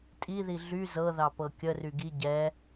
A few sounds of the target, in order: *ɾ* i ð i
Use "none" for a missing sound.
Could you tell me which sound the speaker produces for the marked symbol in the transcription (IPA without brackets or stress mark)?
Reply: tʼ